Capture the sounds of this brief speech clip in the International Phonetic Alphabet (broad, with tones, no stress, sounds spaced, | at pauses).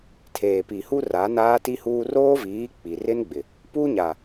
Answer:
tʰ eː˨ p i˨ h u˦ r a˨˦ n aː˦ t i˦ h uː˦ r oː˦ v iː˨˦ k͡p i˨ r ɪ˦ n ɡ͡b ɪ˨ | p u˦ ɲ a˨